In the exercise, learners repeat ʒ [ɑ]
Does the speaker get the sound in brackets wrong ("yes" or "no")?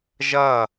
yes